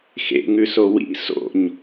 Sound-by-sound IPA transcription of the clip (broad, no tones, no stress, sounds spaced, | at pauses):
x ḛ ŋ ʉ s o w ḭ s o̰ ɲ